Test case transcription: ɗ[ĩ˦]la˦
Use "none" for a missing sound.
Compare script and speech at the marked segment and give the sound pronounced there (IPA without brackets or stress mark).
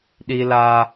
i˦